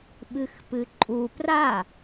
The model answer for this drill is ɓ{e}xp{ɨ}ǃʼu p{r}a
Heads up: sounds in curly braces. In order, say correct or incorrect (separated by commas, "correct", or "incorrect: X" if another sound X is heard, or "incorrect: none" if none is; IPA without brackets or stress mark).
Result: incorrect: ɨ, correct, correct